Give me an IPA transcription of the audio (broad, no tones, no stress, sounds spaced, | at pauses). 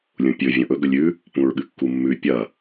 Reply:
lʲ ũ pʲ ɵ vʲ õ ʔ ɵ ɡ ɵ lʲ ʉ | p ũ ɹ ɠ ɨ kː u mː ʉ pʲ ɐ